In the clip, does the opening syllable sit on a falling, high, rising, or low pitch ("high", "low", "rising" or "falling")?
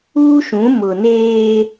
high